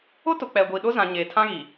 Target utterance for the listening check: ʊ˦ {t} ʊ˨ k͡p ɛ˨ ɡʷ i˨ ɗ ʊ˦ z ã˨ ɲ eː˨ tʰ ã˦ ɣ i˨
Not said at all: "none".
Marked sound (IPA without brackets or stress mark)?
t